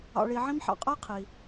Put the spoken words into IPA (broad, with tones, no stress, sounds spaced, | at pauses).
ɑ̰˨ ɭ i˨ ʕ ĩ˦ m ħ ɑ̰˨ qʼ ɐ˥ j qʰ i˩